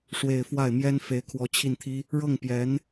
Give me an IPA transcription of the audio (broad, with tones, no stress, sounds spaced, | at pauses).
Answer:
ʂ w e˨˩ ɪ̯ f w a˥˩ ɪ̯ m j ɛ˥ n f e˧˥ ɪ̯ kʰ w ɔ˧˥ t͡ɕʰ i˥˩ n t̪ʰ i˥ | ɻ ɤ˥˩ ŋ p j ɛ˧˥ n